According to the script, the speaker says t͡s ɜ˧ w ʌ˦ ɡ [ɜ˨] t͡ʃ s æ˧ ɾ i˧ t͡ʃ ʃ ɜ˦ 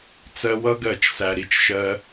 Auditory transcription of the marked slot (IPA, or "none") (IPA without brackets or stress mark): ɜ˦˨